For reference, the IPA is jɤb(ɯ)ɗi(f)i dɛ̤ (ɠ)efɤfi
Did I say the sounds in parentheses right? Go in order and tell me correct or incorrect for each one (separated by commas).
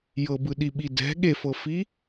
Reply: correct, incorrect, correct